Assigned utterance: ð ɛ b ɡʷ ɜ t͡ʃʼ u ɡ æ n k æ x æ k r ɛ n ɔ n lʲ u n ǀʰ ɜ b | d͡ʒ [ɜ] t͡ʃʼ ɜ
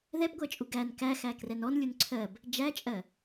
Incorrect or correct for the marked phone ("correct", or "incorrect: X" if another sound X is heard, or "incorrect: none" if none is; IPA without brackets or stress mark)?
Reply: incorrect: æ